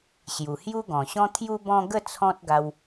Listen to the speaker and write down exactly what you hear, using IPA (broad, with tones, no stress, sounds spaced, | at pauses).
ɕ j u˨˩ h j u˦ ɡ ɔ̃˨˩ ɕ ɔ̃˦ t̪ʰ j u˧ b ɔ̃˧ ɡ ə˥˧ t͡sʰ ɔ̃˦ t̚ ɡ a˧ w